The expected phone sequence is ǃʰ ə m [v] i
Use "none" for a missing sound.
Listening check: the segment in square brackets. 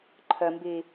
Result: b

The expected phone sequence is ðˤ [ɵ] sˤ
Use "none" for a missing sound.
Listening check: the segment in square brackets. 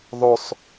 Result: ɵ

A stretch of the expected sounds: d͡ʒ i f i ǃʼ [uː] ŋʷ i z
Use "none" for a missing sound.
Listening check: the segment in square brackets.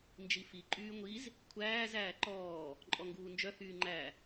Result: yː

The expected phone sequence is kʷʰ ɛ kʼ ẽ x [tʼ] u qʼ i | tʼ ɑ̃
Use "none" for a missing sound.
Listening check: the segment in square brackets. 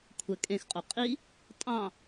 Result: qʼ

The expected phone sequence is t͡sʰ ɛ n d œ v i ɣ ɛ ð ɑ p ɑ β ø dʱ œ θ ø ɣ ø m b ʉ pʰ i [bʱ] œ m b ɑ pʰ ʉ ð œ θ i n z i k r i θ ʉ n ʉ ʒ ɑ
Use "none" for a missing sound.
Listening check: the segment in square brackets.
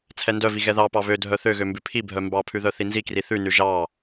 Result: bʱ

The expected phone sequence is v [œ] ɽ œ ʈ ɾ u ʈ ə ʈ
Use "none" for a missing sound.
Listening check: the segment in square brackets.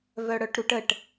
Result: œ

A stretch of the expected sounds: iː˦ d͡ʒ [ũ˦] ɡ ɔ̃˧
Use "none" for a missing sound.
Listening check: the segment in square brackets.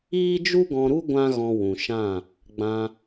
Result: u˦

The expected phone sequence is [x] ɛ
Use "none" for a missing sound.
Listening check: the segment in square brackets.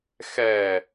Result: x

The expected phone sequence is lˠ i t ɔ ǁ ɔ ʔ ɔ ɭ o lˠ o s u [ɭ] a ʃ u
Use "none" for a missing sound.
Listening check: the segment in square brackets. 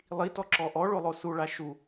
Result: ɭ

